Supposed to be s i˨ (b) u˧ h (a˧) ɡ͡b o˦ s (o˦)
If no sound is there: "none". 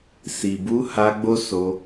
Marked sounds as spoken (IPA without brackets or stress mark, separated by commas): b, a˧, o˧